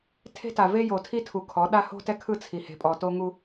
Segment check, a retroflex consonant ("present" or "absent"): absent